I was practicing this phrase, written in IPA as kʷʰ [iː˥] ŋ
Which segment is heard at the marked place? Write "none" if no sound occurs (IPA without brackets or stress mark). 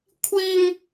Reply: iː˥